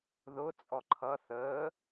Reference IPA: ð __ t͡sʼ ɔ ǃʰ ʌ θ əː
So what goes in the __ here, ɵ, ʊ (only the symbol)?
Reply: ʊ